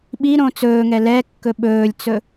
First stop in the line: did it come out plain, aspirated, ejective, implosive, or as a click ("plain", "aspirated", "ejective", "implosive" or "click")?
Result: implosive